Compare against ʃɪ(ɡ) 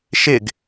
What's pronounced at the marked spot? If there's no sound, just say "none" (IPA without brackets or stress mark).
ɡ